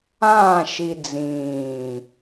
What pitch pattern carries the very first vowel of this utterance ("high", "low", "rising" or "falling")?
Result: falling